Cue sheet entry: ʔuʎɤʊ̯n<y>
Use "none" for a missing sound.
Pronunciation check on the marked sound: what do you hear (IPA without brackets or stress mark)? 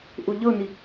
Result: i